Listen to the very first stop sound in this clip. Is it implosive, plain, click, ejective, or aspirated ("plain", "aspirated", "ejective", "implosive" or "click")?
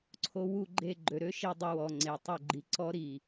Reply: click